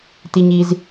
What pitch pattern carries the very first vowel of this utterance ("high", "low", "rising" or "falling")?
low